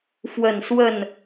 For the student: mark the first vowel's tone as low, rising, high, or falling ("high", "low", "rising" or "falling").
falling